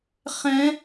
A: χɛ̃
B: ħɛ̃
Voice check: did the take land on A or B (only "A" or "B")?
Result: A